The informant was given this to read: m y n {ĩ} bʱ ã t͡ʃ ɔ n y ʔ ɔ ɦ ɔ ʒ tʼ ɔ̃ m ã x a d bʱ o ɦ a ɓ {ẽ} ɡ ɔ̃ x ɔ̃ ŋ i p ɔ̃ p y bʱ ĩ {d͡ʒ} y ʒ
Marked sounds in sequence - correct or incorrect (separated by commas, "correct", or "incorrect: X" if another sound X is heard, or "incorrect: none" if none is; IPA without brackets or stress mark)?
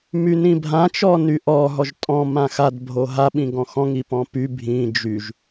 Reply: correct, incorrect: ĩ, correct